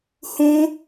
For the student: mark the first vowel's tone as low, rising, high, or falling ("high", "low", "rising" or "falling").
high